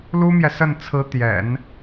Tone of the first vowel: high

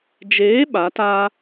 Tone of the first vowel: rising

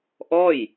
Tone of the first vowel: falling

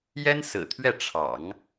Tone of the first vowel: high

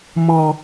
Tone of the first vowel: high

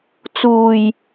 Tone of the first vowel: low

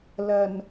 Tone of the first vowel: low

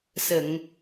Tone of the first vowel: low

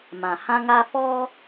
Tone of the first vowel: low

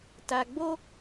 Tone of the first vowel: low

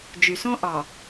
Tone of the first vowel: low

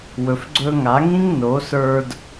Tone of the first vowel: low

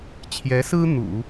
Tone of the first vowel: rising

